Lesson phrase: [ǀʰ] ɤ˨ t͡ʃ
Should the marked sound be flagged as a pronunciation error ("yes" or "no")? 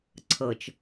no